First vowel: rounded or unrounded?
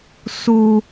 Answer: rounded